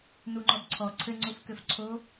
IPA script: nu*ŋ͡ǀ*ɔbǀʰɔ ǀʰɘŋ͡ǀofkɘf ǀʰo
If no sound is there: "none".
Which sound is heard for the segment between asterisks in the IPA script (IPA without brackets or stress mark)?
ŋ͡ǃ